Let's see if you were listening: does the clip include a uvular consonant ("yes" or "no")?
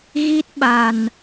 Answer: no